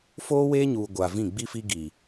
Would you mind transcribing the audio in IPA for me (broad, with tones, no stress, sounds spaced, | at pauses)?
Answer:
f oː˦ w eː˦ ɲ uː˨ ɡʷ aː˨ v ĩ˦˨ ɡ͡b i˦ f i˦ ɡ iː˨